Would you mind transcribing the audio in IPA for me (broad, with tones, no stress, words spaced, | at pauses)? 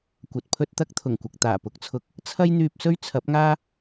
kʷɐ˨t̚pʰɵ˥t̚t̪ɐ˥k̚ t̪ʰʊ˨˩ŋkʷɐ˨k̚ t̪aː˨˩pʊ˨˥k̚t͡sʰʊ˨˥k̚ | t͡sʰɐ˥jn̪yː˧p̚sɵ˥ɥ t͡sʰɐ˨˥p̚ŋaː˥